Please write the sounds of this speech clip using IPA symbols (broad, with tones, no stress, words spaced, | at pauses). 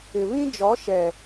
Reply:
ɪ˨βĩ˦ d͡ʒɔ˨˦ʃɛ˨